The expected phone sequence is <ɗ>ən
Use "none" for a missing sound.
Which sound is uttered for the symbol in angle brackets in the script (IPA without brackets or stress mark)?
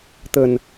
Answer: t̪